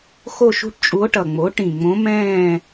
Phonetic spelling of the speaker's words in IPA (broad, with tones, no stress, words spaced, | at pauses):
xo˥˧ʃṳ˥ʈt͡ʃʼu˧˥o̯ʈʌ˨˩ ŋ͡mo˩˥ ʈĩ˨˩ŋ͡mõ˧˥mɛ̃ː˥˧